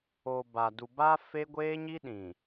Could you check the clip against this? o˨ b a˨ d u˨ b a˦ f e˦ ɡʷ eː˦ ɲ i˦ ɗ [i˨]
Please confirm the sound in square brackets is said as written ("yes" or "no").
no